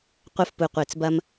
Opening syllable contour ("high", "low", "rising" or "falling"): high